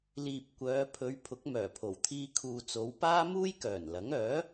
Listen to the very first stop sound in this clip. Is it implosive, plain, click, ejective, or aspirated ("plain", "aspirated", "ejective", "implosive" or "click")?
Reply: plain